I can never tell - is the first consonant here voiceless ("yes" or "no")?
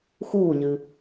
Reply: yes